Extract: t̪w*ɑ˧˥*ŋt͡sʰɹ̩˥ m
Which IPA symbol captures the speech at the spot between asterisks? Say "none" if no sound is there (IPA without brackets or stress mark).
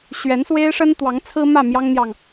ɑ˧˥